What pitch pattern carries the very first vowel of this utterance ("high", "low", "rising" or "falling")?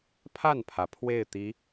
falling